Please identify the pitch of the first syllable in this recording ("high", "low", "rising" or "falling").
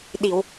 low